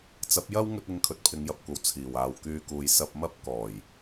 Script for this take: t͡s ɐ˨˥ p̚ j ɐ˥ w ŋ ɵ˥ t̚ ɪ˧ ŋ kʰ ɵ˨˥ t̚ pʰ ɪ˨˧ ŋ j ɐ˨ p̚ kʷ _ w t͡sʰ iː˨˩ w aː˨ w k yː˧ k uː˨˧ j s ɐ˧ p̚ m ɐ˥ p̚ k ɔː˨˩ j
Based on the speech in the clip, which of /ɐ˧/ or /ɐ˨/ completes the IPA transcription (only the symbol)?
ɐ˨